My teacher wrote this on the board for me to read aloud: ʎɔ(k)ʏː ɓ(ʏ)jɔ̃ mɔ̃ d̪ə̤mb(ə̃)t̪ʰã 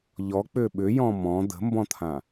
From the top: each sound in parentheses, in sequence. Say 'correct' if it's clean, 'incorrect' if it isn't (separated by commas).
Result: incorrect, correct, incorrect